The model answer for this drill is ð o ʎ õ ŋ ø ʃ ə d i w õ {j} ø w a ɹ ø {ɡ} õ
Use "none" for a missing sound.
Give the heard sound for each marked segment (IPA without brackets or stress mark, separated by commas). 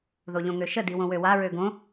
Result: w, ɡ